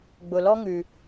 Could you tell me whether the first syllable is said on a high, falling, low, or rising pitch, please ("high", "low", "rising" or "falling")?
low